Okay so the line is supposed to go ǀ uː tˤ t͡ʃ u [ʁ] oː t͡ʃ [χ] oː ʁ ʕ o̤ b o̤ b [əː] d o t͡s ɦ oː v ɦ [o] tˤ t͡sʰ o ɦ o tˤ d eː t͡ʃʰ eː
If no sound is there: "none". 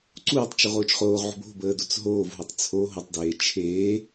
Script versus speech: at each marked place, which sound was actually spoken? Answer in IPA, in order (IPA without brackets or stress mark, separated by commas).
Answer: ʁ, χ, əː, o